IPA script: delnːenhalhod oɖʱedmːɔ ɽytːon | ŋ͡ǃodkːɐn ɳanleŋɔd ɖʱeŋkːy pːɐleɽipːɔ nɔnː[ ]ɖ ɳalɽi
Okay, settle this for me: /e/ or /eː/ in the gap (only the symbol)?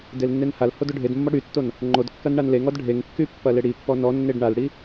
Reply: e